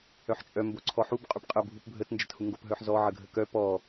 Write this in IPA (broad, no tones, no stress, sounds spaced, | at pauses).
œ ħ t͡ʃʼ œ m b o ǀʰ ɔ ħ u b qʼ y p qʼ ə bʱ u p bʱ ə t n d͡ʒ ə t h u ŋ ɡ o p ɦ œ ħ z ɔ ʕ ə ɡʱ ə k œ p ɔ